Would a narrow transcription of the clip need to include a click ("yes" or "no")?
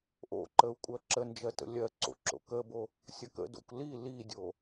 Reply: yes